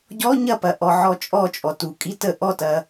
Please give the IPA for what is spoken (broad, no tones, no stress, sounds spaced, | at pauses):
ɟ ɔ ɲ ɐ p ɐ ʔ ɔ ʕ ɔ t͡ʃʼ ɔ t͡ʃʼ ɔ t u kʼ i t ə ʔ ɔ t ɐ